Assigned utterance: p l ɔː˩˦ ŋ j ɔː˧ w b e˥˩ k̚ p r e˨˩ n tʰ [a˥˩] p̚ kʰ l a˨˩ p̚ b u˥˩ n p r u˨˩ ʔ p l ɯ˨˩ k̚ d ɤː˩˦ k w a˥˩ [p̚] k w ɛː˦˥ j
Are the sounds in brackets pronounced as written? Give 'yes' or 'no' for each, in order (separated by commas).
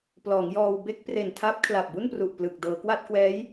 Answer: no, no